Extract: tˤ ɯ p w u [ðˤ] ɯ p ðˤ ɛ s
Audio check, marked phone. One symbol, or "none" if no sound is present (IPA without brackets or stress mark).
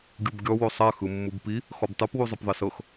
zˤ